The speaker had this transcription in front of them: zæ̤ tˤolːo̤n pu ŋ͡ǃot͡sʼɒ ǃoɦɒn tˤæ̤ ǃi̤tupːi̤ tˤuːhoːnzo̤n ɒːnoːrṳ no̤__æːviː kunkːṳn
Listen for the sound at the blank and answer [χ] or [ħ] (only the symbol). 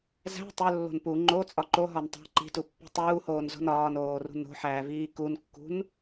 ħ